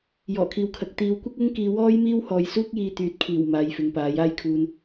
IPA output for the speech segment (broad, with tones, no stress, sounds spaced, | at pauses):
j ɔː˨˩ kʰ iː˨ w kʰ ɐ˨ k̚ t̪ iː˨˧ w kʷ ɪ˥ k̚ ʊ˥ ŋ k iː˧ w ɔː˥ j m iː˥ w h ɔː˨ j s uː˥ k̚ j iː˧ t̪ yː˨˥ t̚ kʰ iː˨˩ w m aː˨˧ j f ɪ˨ ŋ p aː˨˥ j aː˧ j kʰ uː˨ n